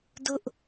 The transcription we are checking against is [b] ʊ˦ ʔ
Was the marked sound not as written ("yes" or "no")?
yes